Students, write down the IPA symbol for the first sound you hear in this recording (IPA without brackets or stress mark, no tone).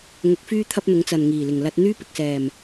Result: ŋ